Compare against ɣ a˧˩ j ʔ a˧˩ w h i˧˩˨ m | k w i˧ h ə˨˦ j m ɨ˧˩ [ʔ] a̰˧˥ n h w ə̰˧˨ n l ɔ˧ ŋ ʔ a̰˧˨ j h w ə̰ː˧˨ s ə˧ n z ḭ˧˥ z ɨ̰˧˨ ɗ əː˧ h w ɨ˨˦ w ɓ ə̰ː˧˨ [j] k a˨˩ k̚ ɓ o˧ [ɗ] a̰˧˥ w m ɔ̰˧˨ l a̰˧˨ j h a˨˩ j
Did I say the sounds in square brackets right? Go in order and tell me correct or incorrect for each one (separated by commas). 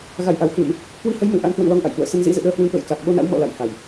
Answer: correct, correct, incorrect